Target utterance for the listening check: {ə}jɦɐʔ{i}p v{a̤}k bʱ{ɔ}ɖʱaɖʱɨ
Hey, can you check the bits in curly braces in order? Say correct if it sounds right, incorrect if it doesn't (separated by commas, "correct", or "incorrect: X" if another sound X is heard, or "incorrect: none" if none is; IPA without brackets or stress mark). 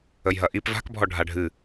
correct, correct, correct, correct